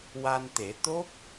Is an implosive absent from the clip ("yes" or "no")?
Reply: yes